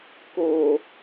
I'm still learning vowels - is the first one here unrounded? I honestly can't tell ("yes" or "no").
no